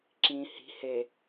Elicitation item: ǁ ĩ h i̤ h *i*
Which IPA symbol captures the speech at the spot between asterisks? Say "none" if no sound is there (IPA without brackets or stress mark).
e